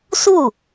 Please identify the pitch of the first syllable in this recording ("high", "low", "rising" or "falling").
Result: falling